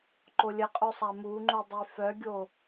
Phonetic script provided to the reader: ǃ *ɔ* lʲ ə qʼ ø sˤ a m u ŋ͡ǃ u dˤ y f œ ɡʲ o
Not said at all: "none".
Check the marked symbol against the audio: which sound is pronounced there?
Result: o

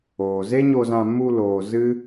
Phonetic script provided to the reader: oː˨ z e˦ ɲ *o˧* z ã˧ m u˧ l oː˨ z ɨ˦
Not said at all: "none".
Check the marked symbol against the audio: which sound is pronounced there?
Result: o˧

